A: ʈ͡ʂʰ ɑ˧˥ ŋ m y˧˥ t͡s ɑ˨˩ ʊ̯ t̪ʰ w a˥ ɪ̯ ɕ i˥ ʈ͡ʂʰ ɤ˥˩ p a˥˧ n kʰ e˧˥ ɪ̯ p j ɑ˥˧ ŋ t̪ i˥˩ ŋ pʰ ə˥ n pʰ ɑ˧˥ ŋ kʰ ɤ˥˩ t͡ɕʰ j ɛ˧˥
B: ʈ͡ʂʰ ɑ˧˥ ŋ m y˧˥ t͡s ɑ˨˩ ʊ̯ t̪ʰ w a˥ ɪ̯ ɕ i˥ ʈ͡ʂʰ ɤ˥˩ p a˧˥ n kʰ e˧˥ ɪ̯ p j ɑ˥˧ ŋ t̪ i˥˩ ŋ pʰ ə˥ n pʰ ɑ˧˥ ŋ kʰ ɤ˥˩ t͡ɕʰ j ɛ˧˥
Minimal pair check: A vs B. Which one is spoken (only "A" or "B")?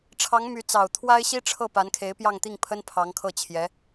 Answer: B